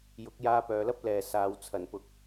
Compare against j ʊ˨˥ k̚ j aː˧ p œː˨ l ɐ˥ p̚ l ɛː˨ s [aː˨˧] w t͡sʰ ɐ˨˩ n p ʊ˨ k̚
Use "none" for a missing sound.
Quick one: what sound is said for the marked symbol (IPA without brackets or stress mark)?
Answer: aː˨˧